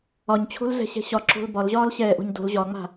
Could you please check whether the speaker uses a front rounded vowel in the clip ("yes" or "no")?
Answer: no